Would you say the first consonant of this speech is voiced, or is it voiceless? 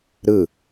voiced